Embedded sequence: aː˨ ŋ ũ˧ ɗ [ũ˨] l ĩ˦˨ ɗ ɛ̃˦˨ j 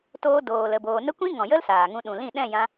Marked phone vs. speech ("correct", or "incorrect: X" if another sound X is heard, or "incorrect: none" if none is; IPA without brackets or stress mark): correct